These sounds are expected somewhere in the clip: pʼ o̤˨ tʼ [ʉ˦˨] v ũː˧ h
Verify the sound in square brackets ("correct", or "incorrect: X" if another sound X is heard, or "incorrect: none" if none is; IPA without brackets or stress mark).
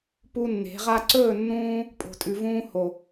incorrect: ʉ˨